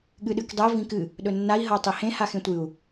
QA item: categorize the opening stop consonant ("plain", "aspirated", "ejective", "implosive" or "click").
implosive